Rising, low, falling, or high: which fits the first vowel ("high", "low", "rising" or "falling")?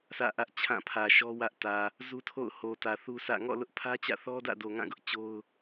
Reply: falling